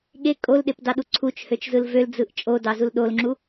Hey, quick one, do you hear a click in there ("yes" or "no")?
yes